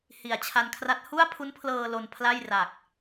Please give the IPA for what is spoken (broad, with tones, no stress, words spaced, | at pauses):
hi˨˩a̯t͡ɕʰa˧nkʰra˦˥t̚ hu˥˩a̯pʰu˦˥npʰlɤː˧ lo˧npʰla˥˩jra˨˩k̚